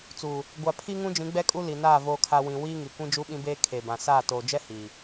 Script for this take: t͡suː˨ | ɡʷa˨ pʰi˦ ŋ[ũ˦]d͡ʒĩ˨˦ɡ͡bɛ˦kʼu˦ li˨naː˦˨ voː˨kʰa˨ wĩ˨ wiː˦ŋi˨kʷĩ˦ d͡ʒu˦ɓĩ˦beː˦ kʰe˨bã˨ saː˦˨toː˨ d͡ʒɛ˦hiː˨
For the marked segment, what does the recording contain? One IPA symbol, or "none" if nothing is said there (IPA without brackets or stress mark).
ũ˦